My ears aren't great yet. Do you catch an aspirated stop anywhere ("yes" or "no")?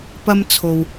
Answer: yes